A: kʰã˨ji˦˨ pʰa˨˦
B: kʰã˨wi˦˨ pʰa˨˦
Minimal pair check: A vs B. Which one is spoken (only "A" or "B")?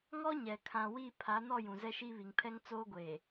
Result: B